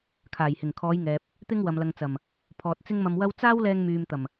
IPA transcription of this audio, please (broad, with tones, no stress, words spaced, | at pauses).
kʰaː˨˩jhɪ˨˩ŋkʰɔː˨˧jŋɛː˨p̚ | t̪ɪ˥ŋwɐ˨mlɐ˨ŋt͡sɐ˨˩m | pʰɔː˨t̚t͡sɪ˥ŋmɐ˧mwɐ˥w t͡saː˥wlɛː˧ŋ myː˨m t̪ɐ˨˩m